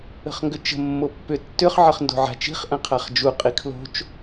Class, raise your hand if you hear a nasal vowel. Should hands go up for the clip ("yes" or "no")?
yes